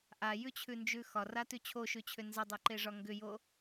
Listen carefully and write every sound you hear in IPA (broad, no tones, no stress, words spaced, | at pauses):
ʔajʉt͡ɕʰʉnd͡ʒʉ xɒratʉ t͡ɕʰoʃʉt͡ɕʰʏ nzədˤeǃeʐɒ ŋɡʏjo